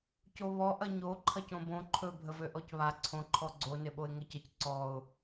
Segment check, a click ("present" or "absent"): present